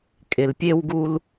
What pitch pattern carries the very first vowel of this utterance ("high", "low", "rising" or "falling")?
low